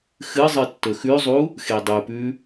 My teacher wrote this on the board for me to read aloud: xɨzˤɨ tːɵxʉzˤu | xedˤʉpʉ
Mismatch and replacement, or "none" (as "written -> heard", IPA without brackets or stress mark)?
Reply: none